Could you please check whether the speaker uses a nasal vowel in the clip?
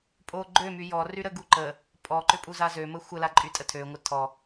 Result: no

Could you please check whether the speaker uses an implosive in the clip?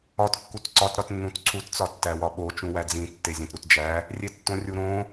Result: yes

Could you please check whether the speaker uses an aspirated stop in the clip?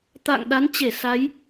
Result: no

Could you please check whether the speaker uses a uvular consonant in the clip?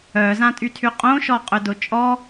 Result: yes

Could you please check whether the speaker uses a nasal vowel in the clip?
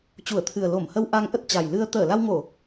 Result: no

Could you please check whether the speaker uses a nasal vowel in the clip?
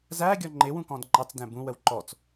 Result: yes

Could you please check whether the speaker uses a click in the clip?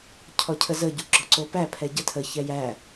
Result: yes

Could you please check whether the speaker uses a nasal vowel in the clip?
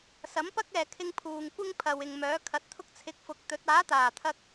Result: no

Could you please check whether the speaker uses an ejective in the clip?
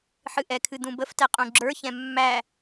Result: yes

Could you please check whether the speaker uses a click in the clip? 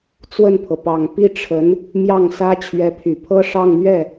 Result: no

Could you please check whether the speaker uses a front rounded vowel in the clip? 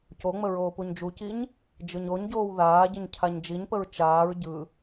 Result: no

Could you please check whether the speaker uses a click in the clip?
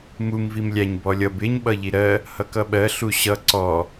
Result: yes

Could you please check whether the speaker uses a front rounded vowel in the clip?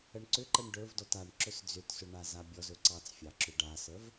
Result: yes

